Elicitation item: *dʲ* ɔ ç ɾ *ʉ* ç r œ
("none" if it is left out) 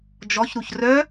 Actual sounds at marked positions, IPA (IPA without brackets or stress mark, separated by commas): d͡ʒ, u